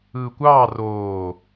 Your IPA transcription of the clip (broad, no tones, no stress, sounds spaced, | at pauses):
ɯː kʷ ɑː r oː